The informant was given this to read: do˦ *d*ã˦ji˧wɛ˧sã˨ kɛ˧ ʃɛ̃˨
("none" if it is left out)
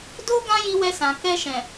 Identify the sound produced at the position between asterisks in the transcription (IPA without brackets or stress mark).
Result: ɡ